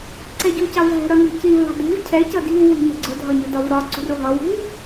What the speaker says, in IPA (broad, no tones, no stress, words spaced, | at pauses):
ǀɛɟucɑvɦɛ̤ ɾʌni̤civ ɑ̤dṳv cʰɛ cʌdi̤v wi̤mɛ̤ɡ͡ǀʊ dʱɒɲʊdɒvɾɒ ǀṳrʊɦʌ wṳv